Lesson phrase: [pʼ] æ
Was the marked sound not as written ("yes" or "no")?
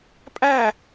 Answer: no